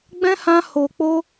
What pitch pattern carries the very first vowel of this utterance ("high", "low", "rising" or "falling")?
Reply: high